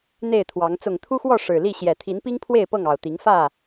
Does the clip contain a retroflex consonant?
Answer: yes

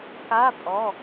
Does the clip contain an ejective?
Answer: yes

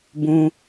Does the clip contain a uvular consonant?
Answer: no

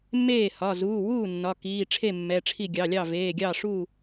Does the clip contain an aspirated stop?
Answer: yes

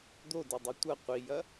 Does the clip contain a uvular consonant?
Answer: yes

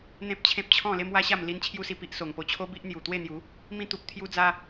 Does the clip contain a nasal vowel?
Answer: yes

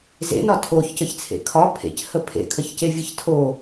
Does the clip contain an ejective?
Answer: no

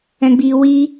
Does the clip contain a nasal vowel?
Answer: yes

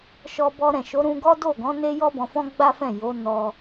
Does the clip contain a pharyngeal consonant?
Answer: no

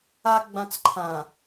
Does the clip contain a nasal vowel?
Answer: yes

